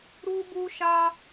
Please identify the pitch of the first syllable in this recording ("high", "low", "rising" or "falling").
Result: high